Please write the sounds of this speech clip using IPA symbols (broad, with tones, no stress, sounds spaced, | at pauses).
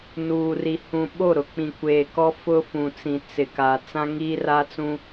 n uː˨ r i˨ h ũ˨ ɓ o˦˨ ɾ ʊ˨ k͡p ĩ˨ kʷ eː˨ k ɔ˦ f ʊ˦ f ũ˨ t͡s ĩ˨ t͡s ɪ˨ k a˨ t͡s ã˦ ŋ iː˦ r a˦ t͡s ũ˦